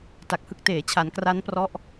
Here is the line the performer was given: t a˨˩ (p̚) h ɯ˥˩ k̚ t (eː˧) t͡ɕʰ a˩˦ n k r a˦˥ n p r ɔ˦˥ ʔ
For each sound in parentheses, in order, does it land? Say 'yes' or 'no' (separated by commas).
no, no